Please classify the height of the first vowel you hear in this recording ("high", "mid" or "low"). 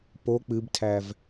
mid